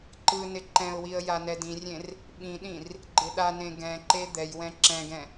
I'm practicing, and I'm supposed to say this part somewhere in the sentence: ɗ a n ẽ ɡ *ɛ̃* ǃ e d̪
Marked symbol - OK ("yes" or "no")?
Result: yes